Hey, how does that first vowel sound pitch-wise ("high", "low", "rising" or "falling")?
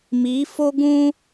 rising